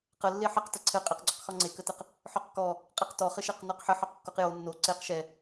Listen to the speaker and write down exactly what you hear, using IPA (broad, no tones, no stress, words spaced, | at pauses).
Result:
qə lːeħəq təǀʰɘ qʼɘqɡ͡ǀoqxɔ ŋ͡ǀekətɘq | ħɔqkɔ | qʼeqtɔχɘʃɛq nɔqħə ħɔqkːoqjo nːo ǀeq ʃɛ